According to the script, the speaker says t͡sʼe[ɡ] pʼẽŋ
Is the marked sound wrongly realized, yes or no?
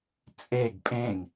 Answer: no